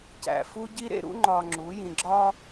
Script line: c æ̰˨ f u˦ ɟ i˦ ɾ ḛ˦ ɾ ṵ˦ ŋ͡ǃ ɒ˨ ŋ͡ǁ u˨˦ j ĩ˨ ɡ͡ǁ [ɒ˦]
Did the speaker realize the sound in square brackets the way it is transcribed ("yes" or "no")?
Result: yes